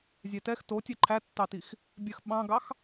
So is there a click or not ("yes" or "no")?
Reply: yes